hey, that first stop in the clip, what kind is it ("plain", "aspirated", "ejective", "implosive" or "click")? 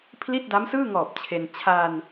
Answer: aspirated